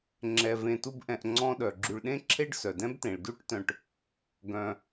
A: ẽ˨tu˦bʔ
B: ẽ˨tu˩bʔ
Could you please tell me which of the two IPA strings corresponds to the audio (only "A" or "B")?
A